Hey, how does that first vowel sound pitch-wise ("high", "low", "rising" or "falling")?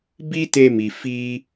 high